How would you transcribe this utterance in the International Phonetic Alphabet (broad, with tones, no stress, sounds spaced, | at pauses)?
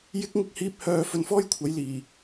j ɪ˥ k̚ ŋ ɪ˥ k̚ h iː˥ p̚ h œː˧ f ɵ˧ n f ɔː˥ j kʷʰ ɐ˨˥ j l iː˨˩